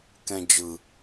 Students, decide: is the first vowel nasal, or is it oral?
nasal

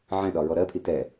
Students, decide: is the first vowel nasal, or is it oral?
nasal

